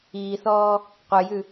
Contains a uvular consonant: yes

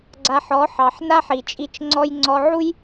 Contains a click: yes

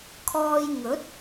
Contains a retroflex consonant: no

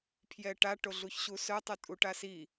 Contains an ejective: yes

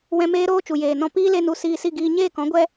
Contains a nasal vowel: yes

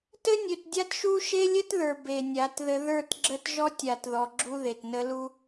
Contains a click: yes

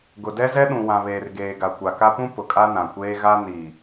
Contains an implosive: yes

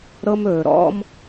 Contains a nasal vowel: no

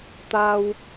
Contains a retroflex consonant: no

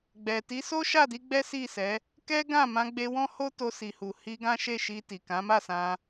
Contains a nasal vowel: yes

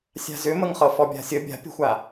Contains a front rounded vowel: yes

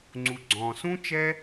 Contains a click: yes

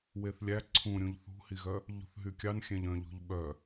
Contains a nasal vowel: yes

